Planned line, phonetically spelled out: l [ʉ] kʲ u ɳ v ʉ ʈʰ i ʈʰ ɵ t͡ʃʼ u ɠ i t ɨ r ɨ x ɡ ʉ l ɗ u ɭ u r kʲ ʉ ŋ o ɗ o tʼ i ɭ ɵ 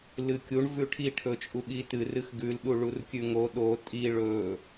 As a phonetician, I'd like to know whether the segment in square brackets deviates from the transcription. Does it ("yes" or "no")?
yes